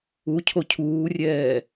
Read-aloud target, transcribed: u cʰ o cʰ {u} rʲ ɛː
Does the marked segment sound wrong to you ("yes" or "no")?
yes